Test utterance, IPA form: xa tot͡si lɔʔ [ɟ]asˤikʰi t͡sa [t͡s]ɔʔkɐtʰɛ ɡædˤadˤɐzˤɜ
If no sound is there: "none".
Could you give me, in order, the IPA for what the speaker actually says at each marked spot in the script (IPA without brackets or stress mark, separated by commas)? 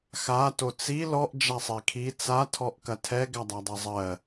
d͡ʒ, tʰ